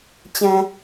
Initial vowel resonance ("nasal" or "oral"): nasal